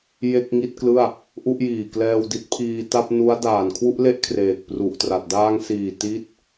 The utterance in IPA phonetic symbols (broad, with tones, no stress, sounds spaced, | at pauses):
j e˥˩ k̚ ŋ i˥˩ t̚ k l ɯ˥˩ a̯ | ʔ u˥˩ ʔ j iː˨˩ k l ɛː˧ w d i˦˥ t̚ pʰ iː˧ t a˥˩ p̚ n u˦˥ a̯ d aː˨˩ n kʰ w u˥˩ ʔ l e˥˩ ʔ kʰ r eː˨˩ k̚ p r u˨˩ ʔ t r a˨˩ t̚ d aː˧ ŋ s iː˨˩ t i˥˩ t̚